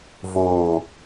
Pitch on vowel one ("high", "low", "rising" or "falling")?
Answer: low